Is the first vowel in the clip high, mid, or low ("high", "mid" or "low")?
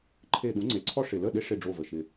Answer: mid